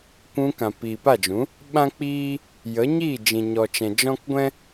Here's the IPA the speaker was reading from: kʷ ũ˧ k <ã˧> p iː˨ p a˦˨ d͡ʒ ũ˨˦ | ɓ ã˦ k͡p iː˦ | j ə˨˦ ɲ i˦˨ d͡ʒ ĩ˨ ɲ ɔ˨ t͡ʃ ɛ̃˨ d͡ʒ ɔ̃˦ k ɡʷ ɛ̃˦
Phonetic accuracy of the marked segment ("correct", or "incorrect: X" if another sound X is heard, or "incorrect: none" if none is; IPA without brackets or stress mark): incorrect: ã˨